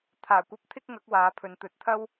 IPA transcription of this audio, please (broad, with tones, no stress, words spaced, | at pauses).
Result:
t̪ʰaː˨˩kʷɐ˧p̚ t̪ʰɪ˥k̚ŋɐ˨˥k̚waː˨˧pʰɵ˨˧n t̪ɵ˨˥t̚t̪ʰɐ˥w